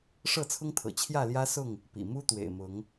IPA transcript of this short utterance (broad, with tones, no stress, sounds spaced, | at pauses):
ʂ ɤ˥˨ t͡sʰ ʊ˦ ŋ t̪ʰ ɤ̰˨˩ t͡ɕʰ j ä˥˨ l j ä˦ s ʊ˥˨ ŋ | p ḭ˨˩ m u˦ t̪ w ḛ˨˩ ɪ̯ m ʊ˨˦ ŋ